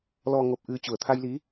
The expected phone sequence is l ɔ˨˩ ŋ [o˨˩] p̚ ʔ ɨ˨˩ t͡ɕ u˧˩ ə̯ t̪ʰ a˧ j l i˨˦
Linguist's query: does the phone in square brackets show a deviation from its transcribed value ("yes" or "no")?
no